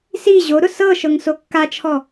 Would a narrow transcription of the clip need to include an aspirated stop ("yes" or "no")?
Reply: yes